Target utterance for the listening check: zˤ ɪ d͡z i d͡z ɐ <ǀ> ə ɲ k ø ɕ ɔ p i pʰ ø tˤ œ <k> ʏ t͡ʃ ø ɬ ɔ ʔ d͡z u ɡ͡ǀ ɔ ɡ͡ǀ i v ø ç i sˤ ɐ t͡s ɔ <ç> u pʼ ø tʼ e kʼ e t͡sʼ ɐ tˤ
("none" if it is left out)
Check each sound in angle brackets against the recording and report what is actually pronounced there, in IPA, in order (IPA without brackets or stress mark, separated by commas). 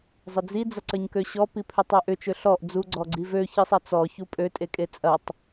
ǀ, ʔ, ç